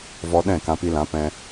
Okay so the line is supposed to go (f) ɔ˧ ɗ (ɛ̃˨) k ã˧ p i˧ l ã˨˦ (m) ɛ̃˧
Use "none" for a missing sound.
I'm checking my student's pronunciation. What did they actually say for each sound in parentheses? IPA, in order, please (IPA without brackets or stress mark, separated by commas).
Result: v, ɛ̃˦˨, p